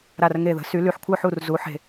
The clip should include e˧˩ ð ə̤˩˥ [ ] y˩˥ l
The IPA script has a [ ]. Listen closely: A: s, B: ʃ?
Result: A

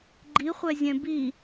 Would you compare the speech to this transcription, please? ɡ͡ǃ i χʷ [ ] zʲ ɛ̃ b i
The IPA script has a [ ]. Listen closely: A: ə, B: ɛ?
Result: B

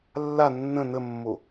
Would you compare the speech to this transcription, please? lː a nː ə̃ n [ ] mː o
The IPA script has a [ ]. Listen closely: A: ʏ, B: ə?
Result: B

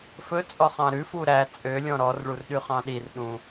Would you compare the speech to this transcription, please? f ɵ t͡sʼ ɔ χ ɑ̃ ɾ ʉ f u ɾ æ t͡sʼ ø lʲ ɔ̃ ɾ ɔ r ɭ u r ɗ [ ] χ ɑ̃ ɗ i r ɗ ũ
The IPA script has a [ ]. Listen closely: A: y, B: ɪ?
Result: A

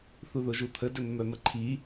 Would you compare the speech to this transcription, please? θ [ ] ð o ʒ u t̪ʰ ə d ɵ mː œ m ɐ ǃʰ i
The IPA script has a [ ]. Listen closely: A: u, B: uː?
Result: A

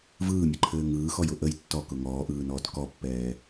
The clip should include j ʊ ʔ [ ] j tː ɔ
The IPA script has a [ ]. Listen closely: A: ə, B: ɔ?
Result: A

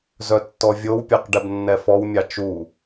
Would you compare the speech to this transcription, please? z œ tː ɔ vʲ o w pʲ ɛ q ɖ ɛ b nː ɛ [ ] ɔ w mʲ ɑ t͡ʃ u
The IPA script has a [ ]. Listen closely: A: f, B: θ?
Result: A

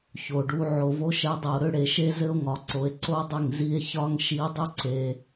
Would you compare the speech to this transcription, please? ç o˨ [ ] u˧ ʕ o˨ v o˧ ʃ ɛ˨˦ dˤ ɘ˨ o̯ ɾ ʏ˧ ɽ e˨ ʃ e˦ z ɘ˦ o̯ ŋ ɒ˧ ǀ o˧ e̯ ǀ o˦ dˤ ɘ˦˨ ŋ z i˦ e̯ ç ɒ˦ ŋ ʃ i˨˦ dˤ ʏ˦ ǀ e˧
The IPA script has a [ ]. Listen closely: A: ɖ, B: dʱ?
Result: A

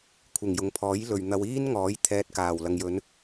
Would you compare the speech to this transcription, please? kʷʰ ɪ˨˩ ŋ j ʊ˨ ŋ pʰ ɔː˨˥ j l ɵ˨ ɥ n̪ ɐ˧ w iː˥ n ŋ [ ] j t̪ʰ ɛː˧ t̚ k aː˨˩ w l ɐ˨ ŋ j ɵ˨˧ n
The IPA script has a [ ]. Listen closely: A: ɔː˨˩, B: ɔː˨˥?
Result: B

